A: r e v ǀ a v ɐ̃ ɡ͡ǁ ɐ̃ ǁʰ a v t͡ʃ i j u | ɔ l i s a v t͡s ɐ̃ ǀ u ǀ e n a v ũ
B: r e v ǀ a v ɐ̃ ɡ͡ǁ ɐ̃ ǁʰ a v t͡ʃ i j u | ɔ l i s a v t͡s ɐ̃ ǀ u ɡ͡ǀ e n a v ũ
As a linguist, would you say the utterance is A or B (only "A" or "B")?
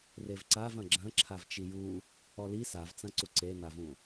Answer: A